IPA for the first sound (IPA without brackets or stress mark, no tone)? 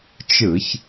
t͡ʃ